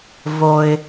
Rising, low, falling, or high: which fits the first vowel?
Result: low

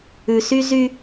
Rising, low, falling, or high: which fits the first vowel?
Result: high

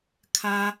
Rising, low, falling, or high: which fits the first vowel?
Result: high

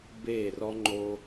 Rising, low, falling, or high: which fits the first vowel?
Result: falling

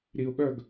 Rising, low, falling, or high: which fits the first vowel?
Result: low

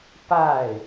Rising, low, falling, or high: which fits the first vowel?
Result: falling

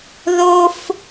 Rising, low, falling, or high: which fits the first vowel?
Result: high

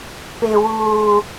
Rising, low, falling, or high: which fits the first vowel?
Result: high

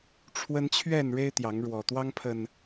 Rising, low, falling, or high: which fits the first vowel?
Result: high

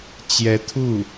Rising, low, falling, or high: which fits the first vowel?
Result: rising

